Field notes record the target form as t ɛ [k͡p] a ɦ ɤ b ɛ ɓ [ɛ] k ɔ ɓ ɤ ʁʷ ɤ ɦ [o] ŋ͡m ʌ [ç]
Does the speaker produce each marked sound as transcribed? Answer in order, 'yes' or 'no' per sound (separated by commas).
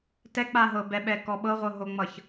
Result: yes, yes, yes, yes